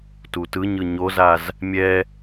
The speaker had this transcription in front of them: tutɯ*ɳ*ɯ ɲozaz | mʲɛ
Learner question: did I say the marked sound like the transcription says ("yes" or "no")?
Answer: no